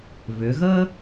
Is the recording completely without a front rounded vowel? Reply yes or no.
no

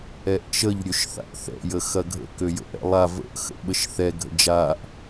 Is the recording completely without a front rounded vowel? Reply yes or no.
no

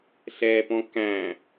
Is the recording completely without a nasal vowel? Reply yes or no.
no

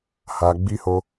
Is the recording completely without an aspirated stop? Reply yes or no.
yes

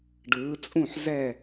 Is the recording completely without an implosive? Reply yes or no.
yes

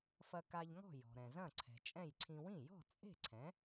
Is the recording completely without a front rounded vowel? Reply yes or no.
yes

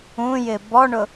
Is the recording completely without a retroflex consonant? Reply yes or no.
no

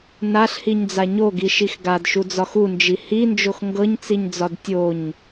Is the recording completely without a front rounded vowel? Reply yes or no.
yes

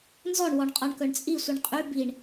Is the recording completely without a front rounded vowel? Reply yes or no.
no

